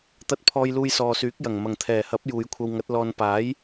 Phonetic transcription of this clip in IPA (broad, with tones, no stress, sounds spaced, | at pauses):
t̪ ɐ˧ t̚ pʰ ɔː˧ j l uː˧ j s ɔː˨ s yː˨˥ k̚ j ɐ˨˩ ŋ m ɐ˨˩ ŋ t̪ʰ ɛː˨˩ h ɐ˨˥ p̚ j uː˨˧ j kʷʰ ɐ˧ w ŋ ɐ˨˥ t̚ l ɔː˧ n p aː˨˥ j